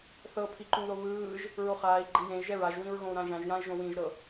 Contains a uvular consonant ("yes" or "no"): yes